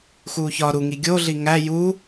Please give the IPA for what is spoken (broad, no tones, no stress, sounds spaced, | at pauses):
x uː ç ɒ ɾ u ŋ i ɡʲ o ɮ i ŋ æ j u